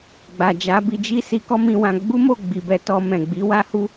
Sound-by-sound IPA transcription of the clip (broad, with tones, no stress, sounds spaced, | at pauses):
ɡ͡b a˨ d͡ʒ a˨˦ b i˧ d͡ʒ i˦ s i˧ k ɔ˦ m ĩ˧ w ã˧ ɡ͡b u˦ m o˦˨ ɡ͡b i˨ b ɛ˧ t ɔ˧ m ɛ̃˨ ɡ͡b i˨˦ w a˦ h u˦